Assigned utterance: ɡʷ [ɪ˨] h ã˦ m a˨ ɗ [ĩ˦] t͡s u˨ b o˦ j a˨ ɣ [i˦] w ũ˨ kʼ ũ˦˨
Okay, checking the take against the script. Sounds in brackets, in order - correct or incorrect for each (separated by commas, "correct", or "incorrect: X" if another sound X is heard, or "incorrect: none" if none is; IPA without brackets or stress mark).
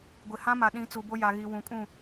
correct, incorrect: ĩ˨˦, incorrect: i˨